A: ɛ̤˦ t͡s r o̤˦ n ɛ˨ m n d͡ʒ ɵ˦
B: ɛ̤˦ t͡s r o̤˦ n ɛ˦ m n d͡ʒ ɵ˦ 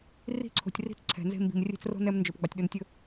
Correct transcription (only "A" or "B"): B